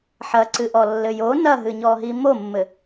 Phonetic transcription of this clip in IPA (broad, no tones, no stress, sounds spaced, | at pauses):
ħ ɐ ǀ ɨ ʔ ɔ lː ɘ j o n ɐ ɦ ɨ ɲ ɔ ɦ i m o mː ɘ